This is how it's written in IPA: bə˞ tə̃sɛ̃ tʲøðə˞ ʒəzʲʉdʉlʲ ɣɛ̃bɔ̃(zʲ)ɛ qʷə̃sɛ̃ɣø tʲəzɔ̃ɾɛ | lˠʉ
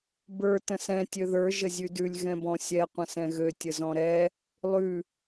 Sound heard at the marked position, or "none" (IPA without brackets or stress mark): sʲ